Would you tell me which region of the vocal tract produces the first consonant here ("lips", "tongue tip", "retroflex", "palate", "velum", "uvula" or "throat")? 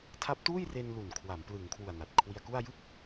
tongue tip